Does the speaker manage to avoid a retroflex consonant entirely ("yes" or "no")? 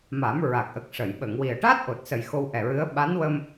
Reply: no